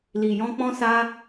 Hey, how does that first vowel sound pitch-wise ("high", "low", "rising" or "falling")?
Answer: low